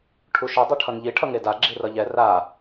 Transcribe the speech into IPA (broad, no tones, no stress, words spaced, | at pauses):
ʈʰuʃʌ dˤɯʈʰʌnʎi ʈʰʌŋeda ɡ͡ǁirʌʎɛ ra